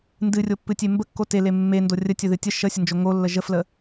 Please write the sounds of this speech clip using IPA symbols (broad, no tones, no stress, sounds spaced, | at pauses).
n d ɨ rʲ o pː ɨ tʲ e m b ə kː o t e l e mː e n d o rʲ ə tʲ ə ð ɨ tʲ ə ʃ ə sʲ ə n d͡ʒ o ŋ o lː ə ʒ ə f l ə